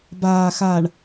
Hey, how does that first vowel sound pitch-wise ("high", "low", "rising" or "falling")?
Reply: low